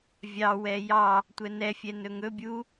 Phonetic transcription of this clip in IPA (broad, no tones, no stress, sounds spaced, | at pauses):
vʲ ɑ w ɛ j ɑ | tʷ ɛ n ɛ fʲ ɛ n ɵ ŋ ɵ bʲ u